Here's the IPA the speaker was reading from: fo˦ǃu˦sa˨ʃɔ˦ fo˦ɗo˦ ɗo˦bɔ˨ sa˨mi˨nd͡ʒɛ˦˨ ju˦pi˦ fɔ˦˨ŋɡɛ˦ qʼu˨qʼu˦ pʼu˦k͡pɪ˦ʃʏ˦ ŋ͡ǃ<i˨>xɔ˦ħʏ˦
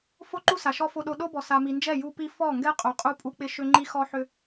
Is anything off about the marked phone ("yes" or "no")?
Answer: yes